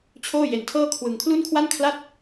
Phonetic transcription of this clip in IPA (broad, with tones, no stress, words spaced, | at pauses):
t͡ɕʰoː˥˩je˧ntʰɤː˥˩kʰwɯ˧ŋ kʰlu˥˩nkʰwa˥˩nkʰla˥˩t̚